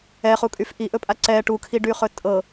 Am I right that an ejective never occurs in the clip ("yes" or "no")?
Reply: no